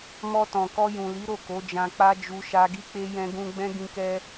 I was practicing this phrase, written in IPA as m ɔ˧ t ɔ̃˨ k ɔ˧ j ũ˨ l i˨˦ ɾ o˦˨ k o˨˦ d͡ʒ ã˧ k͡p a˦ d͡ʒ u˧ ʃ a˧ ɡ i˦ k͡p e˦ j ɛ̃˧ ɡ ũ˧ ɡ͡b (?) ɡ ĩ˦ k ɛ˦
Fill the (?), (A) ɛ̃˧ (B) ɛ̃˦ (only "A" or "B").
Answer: B